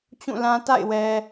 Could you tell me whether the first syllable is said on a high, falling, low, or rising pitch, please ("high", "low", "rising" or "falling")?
falling